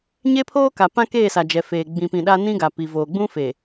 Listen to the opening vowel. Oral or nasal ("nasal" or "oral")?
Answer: oral